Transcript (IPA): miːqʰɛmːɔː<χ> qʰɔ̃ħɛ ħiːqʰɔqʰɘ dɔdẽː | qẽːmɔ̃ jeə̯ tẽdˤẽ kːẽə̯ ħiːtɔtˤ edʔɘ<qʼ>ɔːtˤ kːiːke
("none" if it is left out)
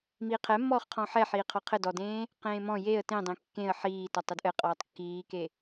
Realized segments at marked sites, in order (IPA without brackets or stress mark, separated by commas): χ, qʼ